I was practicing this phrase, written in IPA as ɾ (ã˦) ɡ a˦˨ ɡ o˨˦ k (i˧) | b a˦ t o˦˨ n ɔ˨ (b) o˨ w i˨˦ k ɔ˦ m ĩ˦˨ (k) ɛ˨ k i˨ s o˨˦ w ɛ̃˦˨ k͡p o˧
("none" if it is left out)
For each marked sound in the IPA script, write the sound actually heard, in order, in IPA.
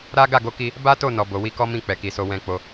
a˦, i˧, b, k͡p

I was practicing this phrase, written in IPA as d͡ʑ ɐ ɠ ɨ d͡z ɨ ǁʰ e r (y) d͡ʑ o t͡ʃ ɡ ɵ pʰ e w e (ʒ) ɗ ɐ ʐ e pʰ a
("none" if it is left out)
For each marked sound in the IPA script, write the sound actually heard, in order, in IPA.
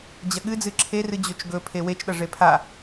ɨ, t͡ʃ

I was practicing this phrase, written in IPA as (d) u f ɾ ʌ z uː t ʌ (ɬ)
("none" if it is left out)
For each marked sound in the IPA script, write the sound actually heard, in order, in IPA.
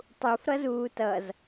tˤ, z

